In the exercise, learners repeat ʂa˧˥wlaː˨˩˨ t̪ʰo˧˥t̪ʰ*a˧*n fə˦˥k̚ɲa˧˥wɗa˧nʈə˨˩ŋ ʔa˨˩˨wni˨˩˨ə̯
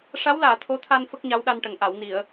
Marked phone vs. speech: correct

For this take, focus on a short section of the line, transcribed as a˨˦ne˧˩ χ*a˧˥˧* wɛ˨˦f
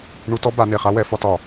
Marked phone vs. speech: incorrect: a˥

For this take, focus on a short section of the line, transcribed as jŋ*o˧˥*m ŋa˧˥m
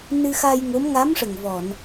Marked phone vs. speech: correct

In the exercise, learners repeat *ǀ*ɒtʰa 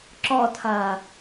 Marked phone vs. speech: incorrect: ǁ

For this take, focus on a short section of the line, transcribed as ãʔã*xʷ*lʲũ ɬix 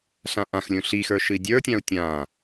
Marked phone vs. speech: incorrect: x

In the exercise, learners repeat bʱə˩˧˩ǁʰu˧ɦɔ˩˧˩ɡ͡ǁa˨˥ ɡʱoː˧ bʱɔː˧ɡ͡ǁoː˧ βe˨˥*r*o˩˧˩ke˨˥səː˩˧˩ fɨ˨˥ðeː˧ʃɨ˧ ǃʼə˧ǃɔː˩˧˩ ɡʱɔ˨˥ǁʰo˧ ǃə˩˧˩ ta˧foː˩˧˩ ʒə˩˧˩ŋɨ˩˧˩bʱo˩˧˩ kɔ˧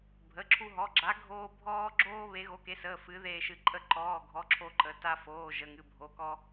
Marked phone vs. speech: incorrect: ɣ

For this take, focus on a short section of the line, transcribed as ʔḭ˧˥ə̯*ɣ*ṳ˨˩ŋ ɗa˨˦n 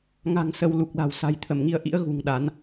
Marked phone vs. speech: correct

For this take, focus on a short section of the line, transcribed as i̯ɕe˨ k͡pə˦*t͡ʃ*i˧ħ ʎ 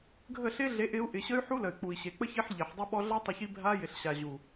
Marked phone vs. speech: incorrect: ç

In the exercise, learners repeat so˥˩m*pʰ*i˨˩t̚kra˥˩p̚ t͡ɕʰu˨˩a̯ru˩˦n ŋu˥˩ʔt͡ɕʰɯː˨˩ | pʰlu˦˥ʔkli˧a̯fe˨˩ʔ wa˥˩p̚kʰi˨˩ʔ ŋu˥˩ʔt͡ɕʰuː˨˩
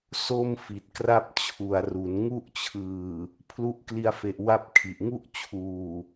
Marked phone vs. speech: incorrect: f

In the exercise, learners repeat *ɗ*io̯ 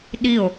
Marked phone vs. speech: correct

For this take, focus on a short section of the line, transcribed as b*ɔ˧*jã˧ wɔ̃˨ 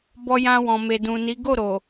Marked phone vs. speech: correct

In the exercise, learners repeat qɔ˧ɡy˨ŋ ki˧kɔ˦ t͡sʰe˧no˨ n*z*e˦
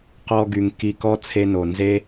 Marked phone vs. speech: correct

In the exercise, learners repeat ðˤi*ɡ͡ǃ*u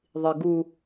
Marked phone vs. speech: incorrect: ɡ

